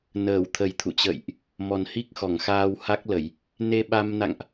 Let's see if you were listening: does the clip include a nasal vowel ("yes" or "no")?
no